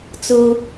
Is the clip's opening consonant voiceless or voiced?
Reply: voiceless